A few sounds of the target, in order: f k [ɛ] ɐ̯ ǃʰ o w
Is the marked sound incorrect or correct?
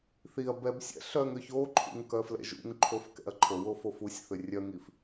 incorrect